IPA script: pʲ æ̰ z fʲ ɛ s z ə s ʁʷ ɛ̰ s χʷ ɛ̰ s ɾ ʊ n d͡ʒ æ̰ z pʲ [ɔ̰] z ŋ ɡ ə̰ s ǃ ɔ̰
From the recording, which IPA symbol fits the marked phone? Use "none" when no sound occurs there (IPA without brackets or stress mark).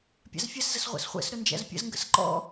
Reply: ə̰